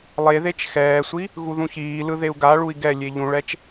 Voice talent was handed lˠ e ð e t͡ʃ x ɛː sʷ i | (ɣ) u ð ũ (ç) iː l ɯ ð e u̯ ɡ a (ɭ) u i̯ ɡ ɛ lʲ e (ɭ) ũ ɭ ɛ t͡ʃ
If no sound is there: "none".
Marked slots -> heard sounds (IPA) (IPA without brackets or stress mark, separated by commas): ɣ, ç, ɭ, ʎ